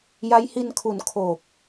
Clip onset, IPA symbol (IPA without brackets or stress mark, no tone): j